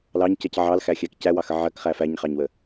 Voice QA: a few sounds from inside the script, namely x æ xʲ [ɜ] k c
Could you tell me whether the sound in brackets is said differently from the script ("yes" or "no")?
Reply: yes